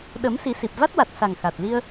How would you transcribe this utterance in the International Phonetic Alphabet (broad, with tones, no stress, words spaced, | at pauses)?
ɗəː˨˩˦m si˨˩˦si˨˩p̚ va˦˥t̚wa˨˩t̚ sa˨˩ŋxa˨˩t̚ li˧ə̯